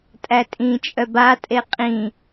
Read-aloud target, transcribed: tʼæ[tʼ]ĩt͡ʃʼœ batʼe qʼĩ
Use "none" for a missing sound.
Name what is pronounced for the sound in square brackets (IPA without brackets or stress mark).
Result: tʼ